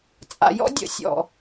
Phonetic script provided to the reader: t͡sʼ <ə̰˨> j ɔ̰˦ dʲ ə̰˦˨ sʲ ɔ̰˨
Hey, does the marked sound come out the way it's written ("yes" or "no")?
no